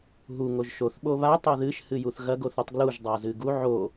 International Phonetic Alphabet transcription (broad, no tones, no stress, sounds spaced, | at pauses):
ɦ u ŋ o ʒ ʃ o θ ɓ o β a tˤ o ð ɨ ʃ h ɨ j u θ ɣ ɐ ɡ o θ u tˤ ɡ l u ʒ dˤ a z ɨ ɡ u ʕ o